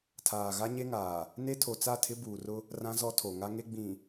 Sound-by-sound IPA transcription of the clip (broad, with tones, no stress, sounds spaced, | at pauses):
tʰ aː˨ ɣ a˦ ɲ e˦ ŋ aː˨ | n e˦ tʰ o˨ t͡s a˦˨ tʰ ɪ˦ b uː˨ r ʊ˦ | r ã˦ z ɔ˦ tʰ o˨ ŋ a˦ ŋ e˦ ɡ͡b ĩ˨